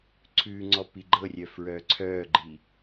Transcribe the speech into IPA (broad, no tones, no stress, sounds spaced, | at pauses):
ǀʰ ʉː ŋ͡ǀ ɔ p i ɡ͡ǃ ɤ rʲ œ f ɹ œː ǀʰ œː ɡ͡ǃ i